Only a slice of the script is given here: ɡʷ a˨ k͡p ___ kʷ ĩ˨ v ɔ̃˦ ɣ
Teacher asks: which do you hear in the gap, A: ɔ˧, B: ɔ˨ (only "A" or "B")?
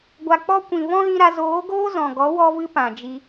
A